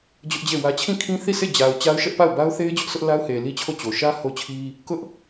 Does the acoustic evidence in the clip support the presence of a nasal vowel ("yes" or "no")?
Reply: yes